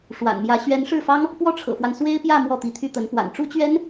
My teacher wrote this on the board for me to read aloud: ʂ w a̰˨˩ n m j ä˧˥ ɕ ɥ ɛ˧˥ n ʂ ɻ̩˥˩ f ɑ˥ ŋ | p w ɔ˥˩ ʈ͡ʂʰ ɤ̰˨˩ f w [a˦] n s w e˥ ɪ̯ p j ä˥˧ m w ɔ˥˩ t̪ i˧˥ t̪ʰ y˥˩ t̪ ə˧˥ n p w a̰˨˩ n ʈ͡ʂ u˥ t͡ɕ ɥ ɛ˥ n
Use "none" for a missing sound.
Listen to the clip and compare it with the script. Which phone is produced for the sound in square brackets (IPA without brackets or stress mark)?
a˦